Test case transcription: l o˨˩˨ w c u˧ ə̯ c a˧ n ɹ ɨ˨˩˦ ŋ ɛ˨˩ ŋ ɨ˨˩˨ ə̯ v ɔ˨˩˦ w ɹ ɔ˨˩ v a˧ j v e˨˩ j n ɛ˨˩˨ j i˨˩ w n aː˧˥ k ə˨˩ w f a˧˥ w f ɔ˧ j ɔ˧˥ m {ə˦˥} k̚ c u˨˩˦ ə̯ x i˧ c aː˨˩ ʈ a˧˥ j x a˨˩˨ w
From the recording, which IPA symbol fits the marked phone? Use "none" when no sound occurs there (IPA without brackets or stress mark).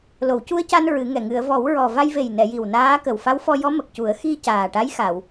ə˨˩